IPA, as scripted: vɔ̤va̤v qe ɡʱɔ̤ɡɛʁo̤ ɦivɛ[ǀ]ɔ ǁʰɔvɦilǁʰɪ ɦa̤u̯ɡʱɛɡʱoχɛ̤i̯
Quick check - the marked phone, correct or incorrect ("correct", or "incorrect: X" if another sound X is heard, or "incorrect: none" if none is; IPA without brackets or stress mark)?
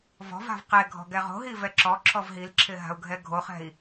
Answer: incorrect: ǁ